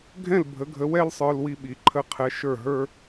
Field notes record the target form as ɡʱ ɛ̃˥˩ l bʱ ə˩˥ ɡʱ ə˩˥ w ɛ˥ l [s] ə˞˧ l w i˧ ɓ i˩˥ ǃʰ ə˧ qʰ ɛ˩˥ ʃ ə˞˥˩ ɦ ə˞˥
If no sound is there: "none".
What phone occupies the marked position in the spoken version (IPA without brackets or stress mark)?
sˤ